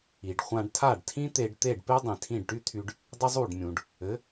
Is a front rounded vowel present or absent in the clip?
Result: present